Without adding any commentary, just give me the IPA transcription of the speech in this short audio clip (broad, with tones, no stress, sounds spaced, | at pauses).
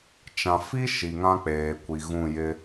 t͡ʃ ã˨ f i˦ ʃ i˨ ŋ ã˦ k͡p eː˨ kʷ i˨ ɣ ũ˦˨ j ɪ˦